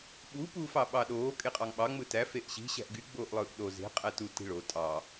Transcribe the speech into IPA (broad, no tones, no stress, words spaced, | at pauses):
ɓu puːfɑɓɑɗoː kʼeqʼɑŋɓɑ ŋ͡mɯtæ feʔɕi̤ ɕæ̤ʔɡy ɡ͡boːʔlˠɯːʔɗo ze̤ qʼætu ti̤ɭo tʼɑ